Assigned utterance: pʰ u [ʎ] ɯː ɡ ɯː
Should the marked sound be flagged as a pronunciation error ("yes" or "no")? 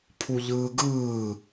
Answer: no